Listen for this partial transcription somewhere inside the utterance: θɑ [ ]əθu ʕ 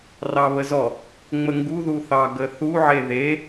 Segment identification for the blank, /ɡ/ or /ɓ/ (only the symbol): ɡ